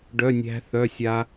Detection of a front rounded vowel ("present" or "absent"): present